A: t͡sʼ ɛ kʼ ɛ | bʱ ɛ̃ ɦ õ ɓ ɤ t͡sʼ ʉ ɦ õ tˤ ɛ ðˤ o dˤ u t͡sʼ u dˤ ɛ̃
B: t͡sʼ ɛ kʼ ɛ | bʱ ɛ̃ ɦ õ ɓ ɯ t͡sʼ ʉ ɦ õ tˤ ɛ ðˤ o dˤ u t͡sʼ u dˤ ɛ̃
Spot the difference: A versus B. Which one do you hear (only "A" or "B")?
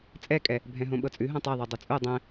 A